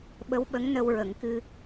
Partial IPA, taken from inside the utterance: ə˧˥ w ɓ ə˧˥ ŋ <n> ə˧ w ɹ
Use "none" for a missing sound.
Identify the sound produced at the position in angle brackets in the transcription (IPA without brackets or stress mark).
n